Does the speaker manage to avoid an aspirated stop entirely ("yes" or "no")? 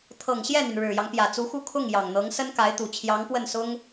no